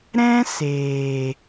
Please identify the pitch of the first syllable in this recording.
high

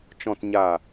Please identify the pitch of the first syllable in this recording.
low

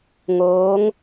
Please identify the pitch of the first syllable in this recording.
rising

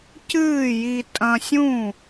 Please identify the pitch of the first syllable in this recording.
falling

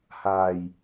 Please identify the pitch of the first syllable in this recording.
low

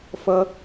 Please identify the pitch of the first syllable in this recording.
high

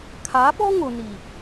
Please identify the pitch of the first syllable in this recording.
rising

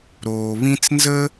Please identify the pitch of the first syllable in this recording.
low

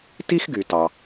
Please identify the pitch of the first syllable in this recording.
high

